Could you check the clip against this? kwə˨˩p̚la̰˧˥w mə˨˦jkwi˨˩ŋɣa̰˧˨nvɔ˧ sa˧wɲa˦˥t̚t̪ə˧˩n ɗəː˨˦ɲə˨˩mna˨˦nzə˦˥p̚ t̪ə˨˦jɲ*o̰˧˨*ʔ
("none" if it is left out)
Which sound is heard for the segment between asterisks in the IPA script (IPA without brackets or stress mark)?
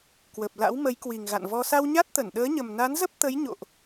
o̰˧˨